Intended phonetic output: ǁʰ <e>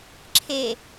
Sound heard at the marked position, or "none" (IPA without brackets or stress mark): e